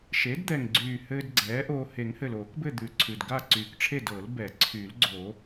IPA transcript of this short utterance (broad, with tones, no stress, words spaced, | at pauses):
ʃe˩˥dd̪ɛ˨˩ŋɡ͡ǀyː˨˩ hɘː˧d ɡ͡ǀɛː˩˥ʔoː˧ he˨˩˦ŋhɘ˨˩loː˨˩˦kbɘ˥˨ d̪ʉ˨˩ǀʰʉ˨˩d ɡa˥˨ǀyː˨˩kʈ͡ʂʰe˥˨d ɤ˨˩˦lbɛ˨˩˦ ǀʰy˨˩˦lɡ͡ǀo˨˩˦